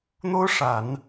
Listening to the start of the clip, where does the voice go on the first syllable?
high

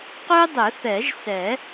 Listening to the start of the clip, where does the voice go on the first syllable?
high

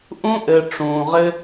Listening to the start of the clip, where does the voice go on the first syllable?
high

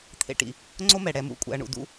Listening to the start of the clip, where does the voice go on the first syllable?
low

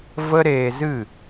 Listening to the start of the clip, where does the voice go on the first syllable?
high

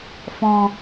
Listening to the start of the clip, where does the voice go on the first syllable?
low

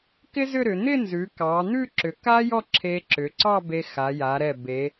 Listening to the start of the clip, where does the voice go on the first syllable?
high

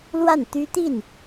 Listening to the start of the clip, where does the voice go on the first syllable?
falling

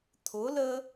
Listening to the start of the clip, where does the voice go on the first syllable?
rising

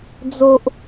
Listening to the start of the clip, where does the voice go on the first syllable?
high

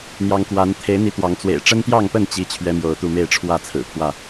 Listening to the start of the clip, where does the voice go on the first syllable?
rising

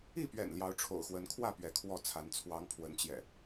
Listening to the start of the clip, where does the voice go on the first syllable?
falling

